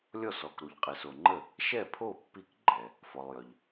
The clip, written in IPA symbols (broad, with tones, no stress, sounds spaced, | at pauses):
lʲ ɔ˥˩ s ɔ˨ k ɾ u˨ ʎ qʼ e˨ s o˨ ŋ͡ǃ ə˥˩ | ʃ ɛ˥˩ pʰ o˥˩ pː i˥˩ k ɡ͡ǃ ɛ˨ | f ɔ˨ lˠ j œ˨ ʎ